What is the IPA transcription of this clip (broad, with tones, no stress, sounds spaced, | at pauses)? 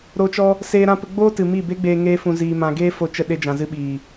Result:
ɾ o˧ t͡ʃ ɔ˦ | s eː˧ ɾ ã˧ p ə˧ ɡ͡b oː˦ t ɨ˨ m i˦˨ b e˦ ɡ͡b eː˧ ŋ e˧ f ũ˨ z iː˨ m ã˨ ɡ eː˦ f o˧ t͡ʃ ə˧ ɗ e˧ d͡ʒ ã˨ z ɨ˧ ɓ iː˨